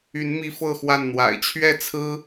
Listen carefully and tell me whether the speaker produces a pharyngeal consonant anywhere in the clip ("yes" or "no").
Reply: no